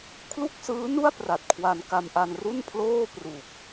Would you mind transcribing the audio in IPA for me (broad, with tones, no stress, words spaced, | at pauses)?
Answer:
kʰlu˥˩k̚sɯː˦˥nu˥˩a̯ pra˨˩t̚kʰwa˧n ka˧mʔa˧n ru˥˩npʰloː˥˩pru˨˩k̚